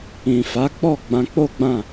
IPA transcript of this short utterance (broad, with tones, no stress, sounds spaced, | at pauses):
ĩ˨ f a˨˦ k͡p ɔ˦˨ ɡ͡b ã˧ k͡p o˦ ɡ͡b ã˦˨